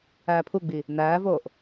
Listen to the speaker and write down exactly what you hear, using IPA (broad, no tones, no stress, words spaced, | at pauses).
æːpʰuɡ͡bi | næːvoːʔ